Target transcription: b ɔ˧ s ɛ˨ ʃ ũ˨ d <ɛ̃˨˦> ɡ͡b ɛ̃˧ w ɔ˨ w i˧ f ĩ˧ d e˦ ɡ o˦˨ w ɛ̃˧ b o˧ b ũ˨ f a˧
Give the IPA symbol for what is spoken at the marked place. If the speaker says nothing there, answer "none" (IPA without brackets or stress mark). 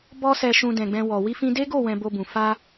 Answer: ɛ̃˨